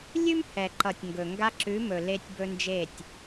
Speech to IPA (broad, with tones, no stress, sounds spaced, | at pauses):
lʲ ʉ˦ m h ɛ˨ ǃ ʌ˨ tʲ ŋ ɡ ɵ˨ ŋ ɡ a˧ ǁ ʉ˨˦ m ɵ˨ l e˧ tʲ b ɵ˧ n d͡ʒ e˦˨ tʲ